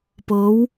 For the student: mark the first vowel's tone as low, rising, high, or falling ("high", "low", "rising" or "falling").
rising